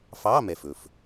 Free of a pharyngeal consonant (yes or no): yes